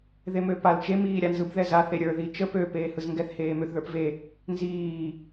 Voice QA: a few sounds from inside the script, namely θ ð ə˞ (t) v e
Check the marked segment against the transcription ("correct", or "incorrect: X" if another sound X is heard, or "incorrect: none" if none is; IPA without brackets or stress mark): incorrect: p